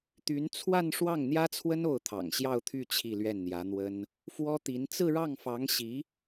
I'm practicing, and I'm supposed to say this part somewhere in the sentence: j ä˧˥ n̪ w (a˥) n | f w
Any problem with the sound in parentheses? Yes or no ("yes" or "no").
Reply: yes